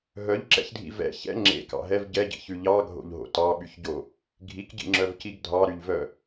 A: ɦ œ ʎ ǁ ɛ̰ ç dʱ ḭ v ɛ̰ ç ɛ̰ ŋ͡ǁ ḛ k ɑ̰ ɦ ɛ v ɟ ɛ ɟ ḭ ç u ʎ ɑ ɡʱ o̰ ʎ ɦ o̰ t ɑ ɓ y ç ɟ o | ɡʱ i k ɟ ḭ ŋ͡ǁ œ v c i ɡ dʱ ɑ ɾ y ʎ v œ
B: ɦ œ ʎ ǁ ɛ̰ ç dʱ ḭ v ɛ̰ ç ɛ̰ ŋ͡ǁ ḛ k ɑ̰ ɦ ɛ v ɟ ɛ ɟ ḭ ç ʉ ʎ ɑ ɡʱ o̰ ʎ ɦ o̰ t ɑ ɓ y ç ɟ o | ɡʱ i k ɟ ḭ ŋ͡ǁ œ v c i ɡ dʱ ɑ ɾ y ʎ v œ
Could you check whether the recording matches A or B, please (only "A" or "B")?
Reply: B